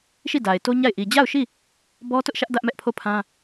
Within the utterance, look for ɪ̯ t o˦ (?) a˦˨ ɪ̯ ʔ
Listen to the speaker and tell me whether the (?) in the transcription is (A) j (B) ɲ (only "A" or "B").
B